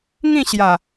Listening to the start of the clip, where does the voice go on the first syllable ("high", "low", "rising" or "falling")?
falling